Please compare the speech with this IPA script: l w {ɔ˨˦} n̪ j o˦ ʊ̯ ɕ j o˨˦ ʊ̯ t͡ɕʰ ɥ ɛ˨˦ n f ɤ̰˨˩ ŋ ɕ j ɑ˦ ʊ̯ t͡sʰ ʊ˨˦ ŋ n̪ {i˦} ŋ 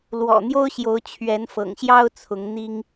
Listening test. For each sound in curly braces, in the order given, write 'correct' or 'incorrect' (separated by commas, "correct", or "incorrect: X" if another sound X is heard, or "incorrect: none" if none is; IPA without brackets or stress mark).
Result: incorrect: ɔ̰˨˩, correct